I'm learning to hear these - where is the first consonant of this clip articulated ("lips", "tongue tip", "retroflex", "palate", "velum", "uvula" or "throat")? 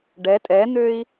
retroflex